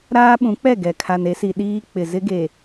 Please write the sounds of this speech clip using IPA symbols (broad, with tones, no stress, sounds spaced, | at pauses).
ɾ aː˦ ɓ ũ˨˦ k͡p ɛ˦˨ ɡ ɛ˨ kʰ a˨ n e˦ s i˨ ɗ iː˦ k͡p ɪ˨ z ɪ˦ ɡ e˨